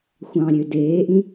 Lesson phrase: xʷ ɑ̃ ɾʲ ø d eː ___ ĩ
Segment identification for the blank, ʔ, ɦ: ʔ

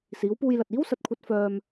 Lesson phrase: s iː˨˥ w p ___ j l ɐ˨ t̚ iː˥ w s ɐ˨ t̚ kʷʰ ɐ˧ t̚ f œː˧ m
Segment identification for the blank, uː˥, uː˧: uː˧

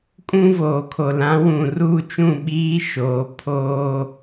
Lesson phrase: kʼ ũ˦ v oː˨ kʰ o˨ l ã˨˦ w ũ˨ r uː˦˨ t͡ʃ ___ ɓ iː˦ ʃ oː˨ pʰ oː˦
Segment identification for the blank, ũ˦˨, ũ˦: ũ˦˨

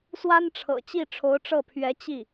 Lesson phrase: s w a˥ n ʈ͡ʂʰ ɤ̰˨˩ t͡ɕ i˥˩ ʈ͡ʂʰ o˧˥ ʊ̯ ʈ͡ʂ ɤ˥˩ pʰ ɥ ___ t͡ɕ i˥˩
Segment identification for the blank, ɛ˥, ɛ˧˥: ɛ˧˥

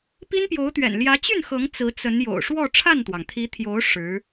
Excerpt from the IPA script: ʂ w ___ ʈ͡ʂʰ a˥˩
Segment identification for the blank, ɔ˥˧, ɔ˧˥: ɔ˥˧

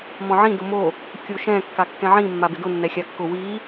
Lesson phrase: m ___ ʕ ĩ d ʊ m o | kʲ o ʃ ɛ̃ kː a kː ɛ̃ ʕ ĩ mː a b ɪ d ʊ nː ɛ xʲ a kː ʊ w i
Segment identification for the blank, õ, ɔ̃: ɔ̃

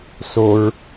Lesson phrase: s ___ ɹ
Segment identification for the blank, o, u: o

